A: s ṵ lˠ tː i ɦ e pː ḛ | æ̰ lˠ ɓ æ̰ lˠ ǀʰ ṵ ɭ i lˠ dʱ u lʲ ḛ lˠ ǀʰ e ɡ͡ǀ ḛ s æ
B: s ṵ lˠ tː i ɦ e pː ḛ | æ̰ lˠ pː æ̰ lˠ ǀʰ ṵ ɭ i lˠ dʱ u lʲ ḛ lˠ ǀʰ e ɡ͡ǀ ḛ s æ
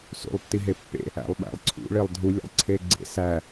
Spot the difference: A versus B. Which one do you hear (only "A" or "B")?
A